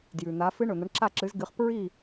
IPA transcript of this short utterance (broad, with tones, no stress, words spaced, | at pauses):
djʉ˩n̪a˨˥ fɨ˦˥ ɳɵ˩n̪ɐ˨˥ɳ ǁa˥˨ǁɨ˨˥zɡɨ˨˥χ pɹi˥˨